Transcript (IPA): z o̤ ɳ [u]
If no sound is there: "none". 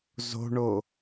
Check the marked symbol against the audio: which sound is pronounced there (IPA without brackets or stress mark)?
o